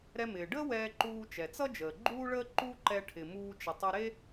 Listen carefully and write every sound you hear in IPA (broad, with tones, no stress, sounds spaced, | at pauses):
ɾ ɛ˧ m ɪː˩ ɖ əː˥ w ɛː˧ ǃ uː˧ t͡ʃ ɛ˩ t͡s ʌ˥ d͡ʒ əː˩ ɡ͡ǃ uː˥ ɭ əː˥ ǃ u˥ ǃ ɛ˧ ʈʰ ɪ˩ m uː˧ t͡ʃ ə˩ tˤ ʌ˧ ɾ e˥